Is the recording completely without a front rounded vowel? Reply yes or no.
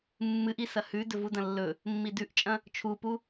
yes